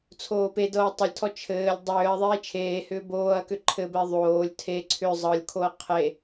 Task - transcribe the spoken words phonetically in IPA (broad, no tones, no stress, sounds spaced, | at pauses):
t͡sʰ oː p e d ɤː tˤ o lʲ tʰ ɔ t͡ʃʰ ɘː lʲ dˤ ʏː ɐ̯ ðˤ eː t͡ʃʰ eː h ʏː b oː ɐ̯ k ʏ ǃʰ ɘ b ɛ ðˤ oː lʲ tʰ e ǀʰ ʏ zˤ ɤ lʲ kʰ o ɐ̯ qʰ e